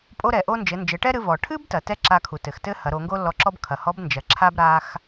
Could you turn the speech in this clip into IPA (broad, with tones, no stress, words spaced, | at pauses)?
pʼo˧ɾɛ˩ʔo˧ nd͡ʒɘ˩˧nd͡ʒɘ˩˧ ʈɛ˥ɾɨ˧ vɔ˩ʈʰɨ˥btɐ˩ tɛ˥ǁa˧kʰu˩ tɘ˩xtɘ˥hɐ˩˧ ɾo˩˧ŋɡo˥lːɔ˧ǁɔ˥b kʰɐ˩hɔ˧˥b nd͡ʒɐ˩ǁʰa˥b ɾa˧x